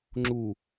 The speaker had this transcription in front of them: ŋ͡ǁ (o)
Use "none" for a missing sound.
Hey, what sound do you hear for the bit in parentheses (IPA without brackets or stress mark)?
u